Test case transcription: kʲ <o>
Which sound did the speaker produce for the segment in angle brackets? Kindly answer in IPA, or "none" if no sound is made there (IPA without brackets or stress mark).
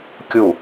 u